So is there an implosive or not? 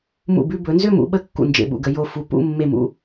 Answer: yes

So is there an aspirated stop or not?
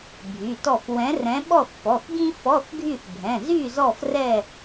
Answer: no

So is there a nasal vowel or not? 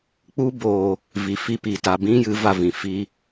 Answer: yes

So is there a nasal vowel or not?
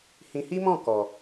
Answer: yes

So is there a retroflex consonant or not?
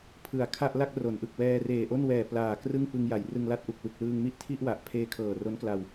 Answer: no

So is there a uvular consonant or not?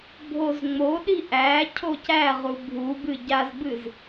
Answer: yes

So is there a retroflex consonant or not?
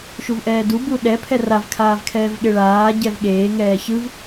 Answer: yes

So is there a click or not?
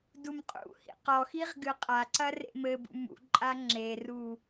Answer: yes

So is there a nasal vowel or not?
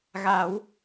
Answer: no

